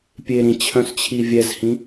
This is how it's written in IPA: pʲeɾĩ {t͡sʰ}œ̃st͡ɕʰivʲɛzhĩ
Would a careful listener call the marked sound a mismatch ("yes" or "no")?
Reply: yes